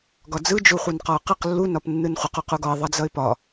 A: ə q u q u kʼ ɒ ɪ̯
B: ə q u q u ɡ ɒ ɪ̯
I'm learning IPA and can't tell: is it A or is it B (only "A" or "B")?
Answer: B